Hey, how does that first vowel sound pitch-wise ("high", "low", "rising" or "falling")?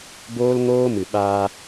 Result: high